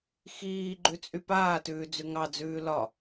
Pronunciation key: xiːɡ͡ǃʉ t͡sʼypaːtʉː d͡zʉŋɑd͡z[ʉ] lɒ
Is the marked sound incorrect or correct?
incorrect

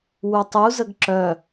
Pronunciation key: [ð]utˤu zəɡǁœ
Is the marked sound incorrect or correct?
incorrect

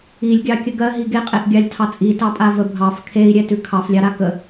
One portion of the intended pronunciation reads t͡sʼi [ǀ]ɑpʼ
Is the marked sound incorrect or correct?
incorrect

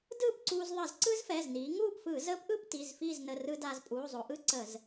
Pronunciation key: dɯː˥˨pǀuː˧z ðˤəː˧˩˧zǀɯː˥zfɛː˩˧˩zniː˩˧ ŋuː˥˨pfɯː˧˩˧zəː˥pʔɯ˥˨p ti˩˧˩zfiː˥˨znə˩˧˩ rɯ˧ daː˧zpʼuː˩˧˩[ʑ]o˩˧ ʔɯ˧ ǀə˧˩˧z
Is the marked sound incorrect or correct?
incorrect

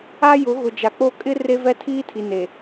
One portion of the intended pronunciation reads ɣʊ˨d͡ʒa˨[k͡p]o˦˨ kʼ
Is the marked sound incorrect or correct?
correct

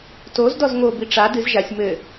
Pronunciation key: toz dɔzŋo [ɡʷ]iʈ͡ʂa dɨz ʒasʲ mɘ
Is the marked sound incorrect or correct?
incorrect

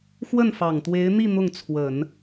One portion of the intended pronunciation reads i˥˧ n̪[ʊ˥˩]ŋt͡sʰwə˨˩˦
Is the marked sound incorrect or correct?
correct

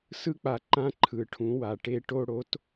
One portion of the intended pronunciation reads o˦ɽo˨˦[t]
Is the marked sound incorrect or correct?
correct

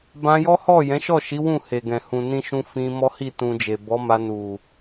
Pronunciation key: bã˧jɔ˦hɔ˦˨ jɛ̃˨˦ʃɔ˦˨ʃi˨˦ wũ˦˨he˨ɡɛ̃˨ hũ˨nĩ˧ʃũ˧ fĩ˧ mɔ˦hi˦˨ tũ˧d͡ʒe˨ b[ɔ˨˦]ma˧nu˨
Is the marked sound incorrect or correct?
correct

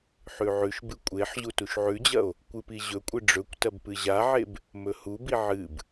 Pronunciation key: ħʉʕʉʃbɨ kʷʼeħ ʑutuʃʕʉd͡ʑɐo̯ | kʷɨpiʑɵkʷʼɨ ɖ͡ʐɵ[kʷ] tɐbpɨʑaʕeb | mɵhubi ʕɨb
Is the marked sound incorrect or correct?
correct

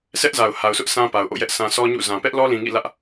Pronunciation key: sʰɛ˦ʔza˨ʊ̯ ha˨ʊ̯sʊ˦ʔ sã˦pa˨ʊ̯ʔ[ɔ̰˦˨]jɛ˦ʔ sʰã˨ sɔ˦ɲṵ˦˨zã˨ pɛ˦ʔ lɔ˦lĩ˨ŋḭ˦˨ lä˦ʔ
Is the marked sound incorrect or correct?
incorrect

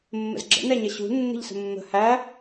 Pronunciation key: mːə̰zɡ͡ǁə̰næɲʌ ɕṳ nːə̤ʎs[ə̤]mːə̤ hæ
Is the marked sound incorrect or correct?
correct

